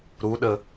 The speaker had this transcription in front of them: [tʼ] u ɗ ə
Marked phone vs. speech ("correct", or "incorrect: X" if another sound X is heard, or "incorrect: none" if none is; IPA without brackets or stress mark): incorrect: ɾ